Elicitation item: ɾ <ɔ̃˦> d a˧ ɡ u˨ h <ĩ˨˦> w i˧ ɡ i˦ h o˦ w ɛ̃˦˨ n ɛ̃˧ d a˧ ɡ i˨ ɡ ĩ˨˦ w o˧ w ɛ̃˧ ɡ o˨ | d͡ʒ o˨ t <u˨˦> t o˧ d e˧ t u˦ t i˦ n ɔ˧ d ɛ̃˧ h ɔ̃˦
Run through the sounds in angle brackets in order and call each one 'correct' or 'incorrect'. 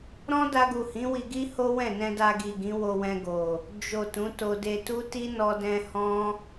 correct, correct, incorrect: ũ˨˦

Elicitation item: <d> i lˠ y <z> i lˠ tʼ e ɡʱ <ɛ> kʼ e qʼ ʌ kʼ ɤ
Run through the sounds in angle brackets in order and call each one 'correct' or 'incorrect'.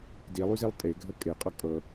correct, correct, incorrect: ə

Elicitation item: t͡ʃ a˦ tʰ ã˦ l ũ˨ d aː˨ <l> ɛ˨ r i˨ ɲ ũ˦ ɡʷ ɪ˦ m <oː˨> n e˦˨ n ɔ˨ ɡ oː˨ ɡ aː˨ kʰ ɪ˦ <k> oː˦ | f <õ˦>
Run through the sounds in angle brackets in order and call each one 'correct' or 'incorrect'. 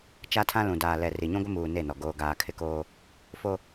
correct, incorrect: uː˨, correct, incorrect: o˦

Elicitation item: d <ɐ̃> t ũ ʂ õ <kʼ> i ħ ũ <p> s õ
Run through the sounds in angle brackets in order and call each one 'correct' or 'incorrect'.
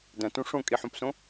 correct, correct, correct

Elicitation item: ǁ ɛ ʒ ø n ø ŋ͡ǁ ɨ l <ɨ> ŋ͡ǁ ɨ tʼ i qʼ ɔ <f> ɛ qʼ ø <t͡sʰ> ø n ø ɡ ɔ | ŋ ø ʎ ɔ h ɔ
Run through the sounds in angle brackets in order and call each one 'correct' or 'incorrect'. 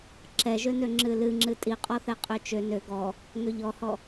correct, incorrect: θ, incorrect: t͡ʃ

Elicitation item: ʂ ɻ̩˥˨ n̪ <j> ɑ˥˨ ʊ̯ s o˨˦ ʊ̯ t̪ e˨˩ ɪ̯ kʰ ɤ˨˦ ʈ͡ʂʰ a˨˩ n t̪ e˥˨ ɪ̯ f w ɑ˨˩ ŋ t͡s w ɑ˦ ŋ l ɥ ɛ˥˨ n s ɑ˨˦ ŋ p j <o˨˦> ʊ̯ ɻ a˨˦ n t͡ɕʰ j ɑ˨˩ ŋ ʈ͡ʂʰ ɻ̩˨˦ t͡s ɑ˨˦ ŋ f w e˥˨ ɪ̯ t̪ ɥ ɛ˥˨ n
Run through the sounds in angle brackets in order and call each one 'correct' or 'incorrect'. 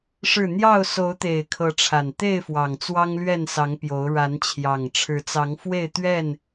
correct, correct

